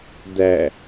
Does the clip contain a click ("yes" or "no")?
no